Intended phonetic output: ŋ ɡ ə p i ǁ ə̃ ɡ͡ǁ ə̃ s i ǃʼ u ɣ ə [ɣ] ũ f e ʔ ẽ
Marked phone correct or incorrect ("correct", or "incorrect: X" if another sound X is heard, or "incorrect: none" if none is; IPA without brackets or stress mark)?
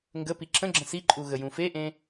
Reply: incorrect: j